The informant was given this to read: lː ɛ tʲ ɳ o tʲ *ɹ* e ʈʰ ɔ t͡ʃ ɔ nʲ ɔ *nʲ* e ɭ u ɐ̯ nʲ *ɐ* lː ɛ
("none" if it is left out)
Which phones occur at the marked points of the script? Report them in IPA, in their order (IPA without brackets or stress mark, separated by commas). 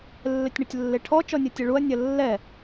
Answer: lː, tʲ, ɐ